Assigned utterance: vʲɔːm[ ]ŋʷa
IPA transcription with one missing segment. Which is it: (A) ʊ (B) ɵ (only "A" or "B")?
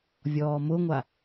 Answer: A